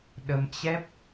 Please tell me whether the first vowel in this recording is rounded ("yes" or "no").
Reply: no